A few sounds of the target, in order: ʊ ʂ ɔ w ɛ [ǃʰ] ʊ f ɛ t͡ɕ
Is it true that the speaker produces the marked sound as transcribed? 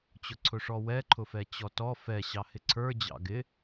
yes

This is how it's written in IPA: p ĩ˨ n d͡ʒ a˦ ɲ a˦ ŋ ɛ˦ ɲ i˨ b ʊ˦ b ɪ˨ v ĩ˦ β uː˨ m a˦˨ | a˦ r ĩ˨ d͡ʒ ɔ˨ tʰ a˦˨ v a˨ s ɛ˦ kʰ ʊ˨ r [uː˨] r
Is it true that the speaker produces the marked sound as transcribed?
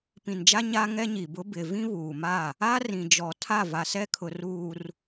yes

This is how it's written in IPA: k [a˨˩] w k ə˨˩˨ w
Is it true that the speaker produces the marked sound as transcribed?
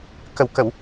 no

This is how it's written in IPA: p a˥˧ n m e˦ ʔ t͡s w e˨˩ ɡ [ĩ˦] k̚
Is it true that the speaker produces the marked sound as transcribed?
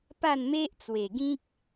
yes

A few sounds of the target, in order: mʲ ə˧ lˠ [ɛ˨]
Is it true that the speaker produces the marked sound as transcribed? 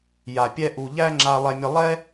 no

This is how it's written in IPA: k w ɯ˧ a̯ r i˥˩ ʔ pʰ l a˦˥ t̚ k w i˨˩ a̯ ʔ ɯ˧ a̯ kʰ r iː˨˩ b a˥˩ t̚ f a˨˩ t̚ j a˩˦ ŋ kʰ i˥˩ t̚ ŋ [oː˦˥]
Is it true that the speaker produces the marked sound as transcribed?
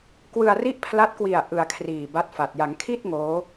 yes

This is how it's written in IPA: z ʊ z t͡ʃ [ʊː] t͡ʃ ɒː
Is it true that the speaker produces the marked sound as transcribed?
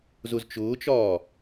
yes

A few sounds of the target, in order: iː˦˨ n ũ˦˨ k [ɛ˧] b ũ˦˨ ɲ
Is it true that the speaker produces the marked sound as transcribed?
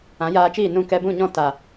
yes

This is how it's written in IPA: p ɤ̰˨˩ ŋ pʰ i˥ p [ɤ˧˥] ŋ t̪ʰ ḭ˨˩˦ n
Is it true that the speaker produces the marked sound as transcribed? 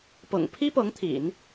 yes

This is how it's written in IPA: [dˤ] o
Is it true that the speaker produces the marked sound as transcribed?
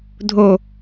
no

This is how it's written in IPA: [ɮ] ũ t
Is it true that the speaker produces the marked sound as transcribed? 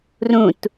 no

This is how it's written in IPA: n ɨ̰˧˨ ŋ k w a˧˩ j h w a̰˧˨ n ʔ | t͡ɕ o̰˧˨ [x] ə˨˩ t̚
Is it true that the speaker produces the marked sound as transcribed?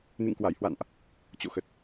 yes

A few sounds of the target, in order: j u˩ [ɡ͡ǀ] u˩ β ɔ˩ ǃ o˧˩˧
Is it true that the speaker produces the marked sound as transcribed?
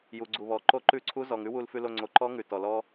yes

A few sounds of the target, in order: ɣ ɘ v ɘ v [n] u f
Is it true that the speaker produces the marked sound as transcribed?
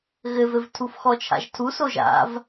no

